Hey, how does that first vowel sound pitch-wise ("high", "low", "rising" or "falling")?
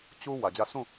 high